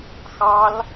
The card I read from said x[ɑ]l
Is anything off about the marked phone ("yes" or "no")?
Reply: no